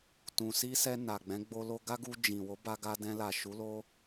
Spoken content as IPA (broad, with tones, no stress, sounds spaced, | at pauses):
t ũ˨ s i˧ s ɛ˧ n a˨ ɡ͡b ɛ̃˨˦ ɡ͡b o˧ l o˧ ɡ a˦ ɡ u˧ d͡ʒ ĩ˨ w o˨˦ b a˧ ɡ a˧ d ɛ̃˧ l a˨ ʃ u˨˦ l o˦